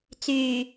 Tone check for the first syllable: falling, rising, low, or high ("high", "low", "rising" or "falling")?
low